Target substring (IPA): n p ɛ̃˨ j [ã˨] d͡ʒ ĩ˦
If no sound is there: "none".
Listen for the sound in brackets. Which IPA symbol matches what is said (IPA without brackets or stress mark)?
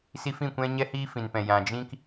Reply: ã˨